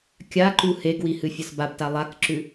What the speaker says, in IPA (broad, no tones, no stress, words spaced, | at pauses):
kʲaǃu heɡwihɨfʲɐs babta lˠakǁʉ